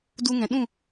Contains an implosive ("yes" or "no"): yes